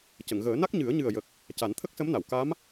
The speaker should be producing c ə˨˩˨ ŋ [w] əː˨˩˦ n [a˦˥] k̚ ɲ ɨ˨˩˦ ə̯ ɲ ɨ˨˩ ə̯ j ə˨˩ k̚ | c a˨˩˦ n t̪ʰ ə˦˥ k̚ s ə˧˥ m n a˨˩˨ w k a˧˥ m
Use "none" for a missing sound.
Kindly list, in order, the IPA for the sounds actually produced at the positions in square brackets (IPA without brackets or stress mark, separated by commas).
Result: ɣ, a˦˥